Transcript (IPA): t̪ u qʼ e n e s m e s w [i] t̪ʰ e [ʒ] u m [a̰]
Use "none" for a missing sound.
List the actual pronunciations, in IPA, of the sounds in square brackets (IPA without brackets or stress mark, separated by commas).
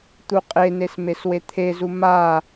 e, z, a